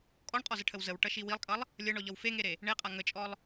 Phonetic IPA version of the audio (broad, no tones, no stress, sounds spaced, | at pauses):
kʼ ɔ ɳ qʼ ɔ z ə ʈʰ ə w z ə w ʈ ʌ ʃ i w i lˠ kʼ ʌ lˠ | lʲ ʌ ɳ ɔ ʎ ʌ w f e ŋ e ɾ e | ɳ e qʼ a ŋ ə t͡ʃʼ ɔ lˠ